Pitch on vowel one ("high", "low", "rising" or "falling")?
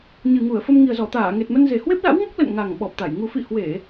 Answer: low